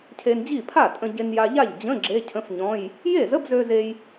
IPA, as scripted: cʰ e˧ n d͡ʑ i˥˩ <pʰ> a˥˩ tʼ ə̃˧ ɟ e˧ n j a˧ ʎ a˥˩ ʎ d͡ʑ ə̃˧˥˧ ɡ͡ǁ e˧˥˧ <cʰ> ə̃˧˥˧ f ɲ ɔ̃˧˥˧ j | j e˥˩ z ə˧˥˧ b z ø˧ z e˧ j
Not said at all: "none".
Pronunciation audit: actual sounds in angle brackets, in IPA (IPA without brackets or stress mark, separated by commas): pʰ, cʰ